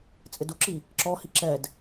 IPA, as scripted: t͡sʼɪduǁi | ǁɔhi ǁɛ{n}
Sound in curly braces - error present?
yes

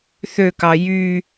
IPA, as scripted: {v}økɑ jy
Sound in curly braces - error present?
yes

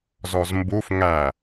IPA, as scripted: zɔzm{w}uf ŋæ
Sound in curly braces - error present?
yes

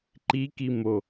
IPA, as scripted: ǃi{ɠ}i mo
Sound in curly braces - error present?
yes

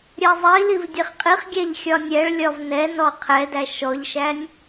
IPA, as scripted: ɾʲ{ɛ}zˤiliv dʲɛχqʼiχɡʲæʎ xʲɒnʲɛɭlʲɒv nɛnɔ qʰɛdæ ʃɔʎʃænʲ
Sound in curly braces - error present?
no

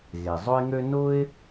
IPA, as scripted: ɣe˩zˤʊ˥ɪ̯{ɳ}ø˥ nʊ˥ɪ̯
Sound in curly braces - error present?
yes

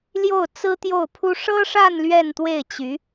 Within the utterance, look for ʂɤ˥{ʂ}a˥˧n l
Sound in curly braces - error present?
no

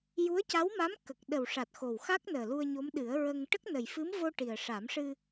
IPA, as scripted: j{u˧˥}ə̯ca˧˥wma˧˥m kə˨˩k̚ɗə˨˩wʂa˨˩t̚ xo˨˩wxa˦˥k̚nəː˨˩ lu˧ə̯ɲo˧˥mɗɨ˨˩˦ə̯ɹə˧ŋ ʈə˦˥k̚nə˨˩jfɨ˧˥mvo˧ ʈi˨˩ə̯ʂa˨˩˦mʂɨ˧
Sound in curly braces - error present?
no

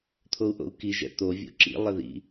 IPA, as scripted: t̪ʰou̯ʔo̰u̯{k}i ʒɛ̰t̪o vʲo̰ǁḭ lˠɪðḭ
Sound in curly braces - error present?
no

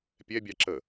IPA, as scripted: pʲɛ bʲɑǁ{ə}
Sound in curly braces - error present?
no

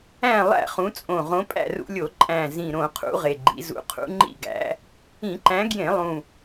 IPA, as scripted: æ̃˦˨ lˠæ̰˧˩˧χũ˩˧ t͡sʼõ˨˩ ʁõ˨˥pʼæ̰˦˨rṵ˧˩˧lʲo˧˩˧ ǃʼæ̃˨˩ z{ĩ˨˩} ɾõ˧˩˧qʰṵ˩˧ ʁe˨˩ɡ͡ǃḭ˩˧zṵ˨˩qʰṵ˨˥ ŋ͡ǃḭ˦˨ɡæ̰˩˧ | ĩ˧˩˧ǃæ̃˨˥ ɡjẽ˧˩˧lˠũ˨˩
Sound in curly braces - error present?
no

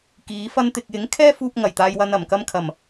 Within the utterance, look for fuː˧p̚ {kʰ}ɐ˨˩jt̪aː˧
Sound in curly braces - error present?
yes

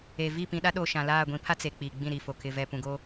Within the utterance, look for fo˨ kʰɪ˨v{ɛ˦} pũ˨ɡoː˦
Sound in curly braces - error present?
yes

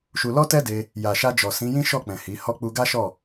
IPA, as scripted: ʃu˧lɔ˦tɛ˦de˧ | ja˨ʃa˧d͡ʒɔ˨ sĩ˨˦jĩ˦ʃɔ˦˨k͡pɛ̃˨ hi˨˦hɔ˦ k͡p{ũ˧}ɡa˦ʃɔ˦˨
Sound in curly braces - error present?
yes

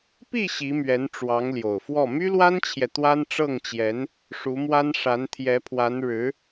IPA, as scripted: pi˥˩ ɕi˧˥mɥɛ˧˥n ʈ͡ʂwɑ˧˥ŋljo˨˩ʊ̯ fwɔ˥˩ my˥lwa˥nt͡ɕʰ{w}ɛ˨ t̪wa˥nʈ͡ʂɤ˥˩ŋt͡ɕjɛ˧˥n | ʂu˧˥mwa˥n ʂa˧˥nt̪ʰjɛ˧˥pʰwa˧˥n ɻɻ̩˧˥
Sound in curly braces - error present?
yes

